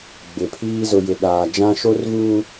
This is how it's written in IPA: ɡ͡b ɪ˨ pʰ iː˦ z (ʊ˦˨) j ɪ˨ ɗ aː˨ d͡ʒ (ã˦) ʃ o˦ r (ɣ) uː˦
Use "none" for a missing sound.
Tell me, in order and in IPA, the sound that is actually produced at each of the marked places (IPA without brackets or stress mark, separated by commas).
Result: ʊ˨, ã˦, ɣ